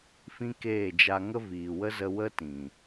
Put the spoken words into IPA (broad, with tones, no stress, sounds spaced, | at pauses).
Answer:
f ĩ˦ k eː˦˨ d͡ʒ a˧ ŋ ə˦ v iː˨ w ə˦ z ə˧ w ə˦ t ĩ˨